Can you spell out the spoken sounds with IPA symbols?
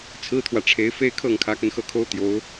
t͡sʰ ɹ̩˥ t̪ʰ w ä˨ ʈ͡ʂʰ e˧˥ ɪ̯ f e˥˧ ɪ̯ kʰ ɤ˥˩ ŋ kʰ ä˧˥ k ə˧ n x ɤ˥˩ kʰ o˥ ʊ̯ t̪ j o˧˥ ʊ̯

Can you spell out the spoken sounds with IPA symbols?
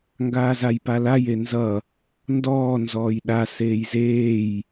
ŋ ɡ aː z a j p a l a j e n z ʌ | n d ɔː n z ɔː j ɗ a s eː j z eː j

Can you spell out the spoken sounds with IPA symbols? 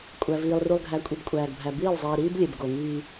kʷʼ æ˨ v iː˨ lˠ r u˨ lˠ ɡʱ æ˨˦ kʷʼ i˨ b kʷʼ æː˨ ɡ bʱ æ˨ b iː˦˨ lˠ zˤ iː˨ ɾ iː˦ b lʲ e˨ b ɡ o˨ ŋ iː˦

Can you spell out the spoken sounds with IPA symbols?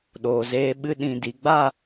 ɗ oː˨ z eː˧ ɓ ɨ˧ ɗ ĩ˨ d i˨ ɡ͡b a˦˨

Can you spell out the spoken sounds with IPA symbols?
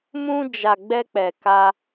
m ũ˧ d͡ʒ a˨ ɡ͡b ɛ˧ k͡p ɛ˨ k a˧

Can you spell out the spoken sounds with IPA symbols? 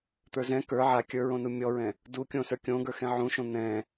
t̪ ə˞ z ɛ̃ k ə˞ ʕ a kʲ ə˞ ɹ õ n u mʲ ɔ ɹ ɛ̃ | d u kʲ õ s ə˞ kʲ õ ɡ ə˞ x ɛ̃ ʕ ũ ʃ õ n̪ ɛ̃

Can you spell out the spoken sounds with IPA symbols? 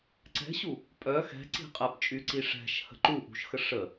ǀ ɛ̤ ɕ u | pʼ œ x ɛ̤ ǀ i̤ qʼ ɛ p t͡ʃʼ y ǀ i ʂ ɛ̤ ʃ h ə̤ ǃ u ʔ ṳ ʃ x ə ʂ ə

